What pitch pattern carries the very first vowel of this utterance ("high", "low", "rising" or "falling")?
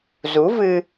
rising